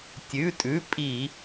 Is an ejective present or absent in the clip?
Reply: present